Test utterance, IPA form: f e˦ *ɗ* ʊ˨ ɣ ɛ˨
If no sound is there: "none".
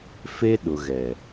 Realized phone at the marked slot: ɗ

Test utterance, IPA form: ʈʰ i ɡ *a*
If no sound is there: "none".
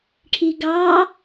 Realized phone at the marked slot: ɑ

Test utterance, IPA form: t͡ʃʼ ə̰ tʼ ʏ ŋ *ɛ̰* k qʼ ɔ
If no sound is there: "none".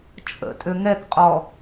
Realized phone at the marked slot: ɛ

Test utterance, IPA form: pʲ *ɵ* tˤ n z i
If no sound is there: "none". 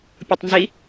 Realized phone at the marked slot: ʊ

